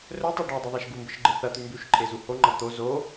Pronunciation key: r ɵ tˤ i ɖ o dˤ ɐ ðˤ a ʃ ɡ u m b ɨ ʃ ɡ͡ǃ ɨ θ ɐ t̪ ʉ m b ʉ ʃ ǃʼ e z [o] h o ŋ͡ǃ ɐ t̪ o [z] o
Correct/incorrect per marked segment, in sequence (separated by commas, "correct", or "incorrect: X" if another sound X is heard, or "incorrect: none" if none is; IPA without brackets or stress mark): incorrect: u, correct